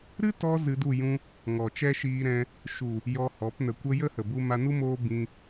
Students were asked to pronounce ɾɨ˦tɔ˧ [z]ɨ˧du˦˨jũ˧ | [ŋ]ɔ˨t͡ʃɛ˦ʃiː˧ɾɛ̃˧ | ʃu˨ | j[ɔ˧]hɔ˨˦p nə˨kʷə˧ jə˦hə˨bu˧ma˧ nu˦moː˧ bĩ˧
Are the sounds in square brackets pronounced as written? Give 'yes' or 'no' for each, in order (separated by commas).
yes, yes, yes